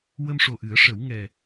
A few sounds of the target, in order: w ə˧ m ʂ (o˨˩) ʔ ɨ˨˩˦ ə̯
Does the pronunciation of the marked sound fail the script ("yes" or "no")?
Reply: no